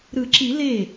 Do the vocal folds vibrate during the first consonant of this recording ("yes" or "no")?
yes